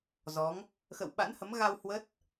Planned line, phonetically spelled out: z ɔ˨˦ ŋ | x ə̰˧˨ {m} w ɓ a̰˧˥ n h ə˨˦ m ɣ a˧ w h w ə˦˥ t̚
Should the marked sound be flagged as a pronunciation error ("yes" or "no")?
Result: yes